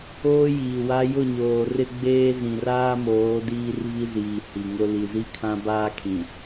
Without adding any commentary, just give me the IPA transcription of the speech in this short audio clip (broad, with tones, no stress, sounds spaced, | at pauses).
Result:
oː˦ j iː˨ w a˦ j ʊ˦˨ ɲ oː˨ r ɪ˦ ɡ͡b eː˦ z ĩ˨ r aː˦ m oː˨˦ d iː˦ r v i˦ z iː˨ h i˨ ŋ ʊ˦ l i˨ z i˦ kʰ ã˦ b aː˦ kʰ ĩ˨